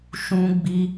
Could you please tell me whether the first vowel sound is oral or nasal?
nasal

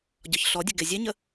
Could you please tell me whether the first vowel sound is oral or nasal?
oral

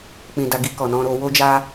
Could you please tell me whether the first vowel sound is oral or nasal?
nasal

